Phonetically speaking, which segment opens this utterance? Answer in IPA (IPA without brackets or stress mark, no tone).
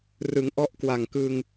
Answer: r